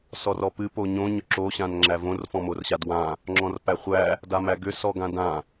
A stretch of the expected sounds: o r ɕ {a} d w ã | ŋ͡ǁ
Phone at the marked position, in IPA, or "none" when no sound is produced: a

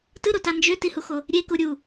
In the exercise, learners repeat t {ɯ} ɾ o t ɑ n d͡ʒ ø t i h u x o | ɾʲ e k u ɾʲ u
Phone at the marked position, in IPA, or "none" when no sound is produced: ɯ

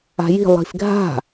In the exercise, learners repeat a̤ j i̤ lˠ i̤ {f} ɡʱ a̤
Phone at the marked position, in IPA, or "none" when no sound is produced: f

